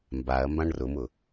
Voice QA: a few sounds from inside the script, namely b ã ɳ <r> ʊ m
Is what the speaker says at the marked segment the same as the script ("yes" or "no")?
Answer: yes